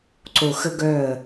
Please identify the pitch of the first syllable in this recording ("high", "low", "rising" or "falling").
low